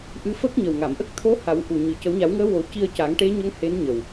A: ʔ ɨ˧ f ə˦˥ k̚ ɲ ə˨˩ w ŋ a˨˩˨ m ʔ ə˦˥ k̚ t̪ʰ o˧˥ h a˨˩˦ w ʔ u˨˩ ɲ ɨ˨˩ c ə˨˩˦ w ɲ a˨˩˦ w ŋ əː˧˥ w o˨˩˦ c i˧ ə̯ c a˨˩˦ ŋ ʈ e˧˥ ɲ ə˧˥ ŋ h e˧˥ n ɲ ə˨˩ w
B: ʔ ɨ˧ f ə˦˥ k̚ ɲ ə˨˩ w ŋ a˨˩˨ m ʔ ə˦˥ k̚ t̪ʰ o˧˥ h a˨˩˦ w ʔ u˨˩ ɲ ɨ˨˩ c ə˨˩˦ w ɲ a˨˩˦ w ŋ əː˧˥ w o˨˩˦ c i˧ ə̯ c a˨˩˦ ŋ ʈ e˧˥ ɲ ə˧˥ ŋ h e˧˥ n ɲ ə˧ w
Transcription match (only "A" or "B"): A